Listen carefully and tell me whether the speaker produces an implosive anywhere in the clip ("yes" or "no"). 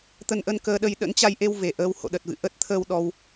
yes